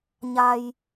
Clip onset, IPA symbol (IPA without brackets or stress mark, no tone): ɲ